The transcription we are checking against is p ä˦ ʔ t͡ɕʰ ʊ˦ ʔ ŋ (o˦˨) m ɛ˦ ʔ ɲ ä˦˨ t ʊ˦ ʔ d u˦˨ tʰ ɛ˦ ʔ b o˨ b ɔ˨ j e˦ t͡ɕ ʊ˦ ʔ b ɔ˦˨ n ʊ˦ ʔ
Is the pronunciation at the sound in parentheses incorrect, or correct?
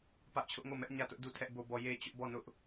correct